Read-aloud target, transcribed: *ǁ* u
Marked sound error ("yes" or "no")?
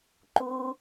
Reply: yes